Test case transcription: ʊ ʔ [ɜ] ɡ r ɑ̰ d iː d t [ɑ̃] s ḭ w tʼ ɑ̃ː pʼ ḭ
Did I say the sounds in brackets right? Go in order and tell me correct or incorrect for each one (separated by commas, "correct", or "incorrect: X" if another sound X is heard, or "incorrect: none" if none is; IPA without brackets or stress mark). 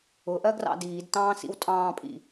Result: correct, incorrect: ɑ̃ː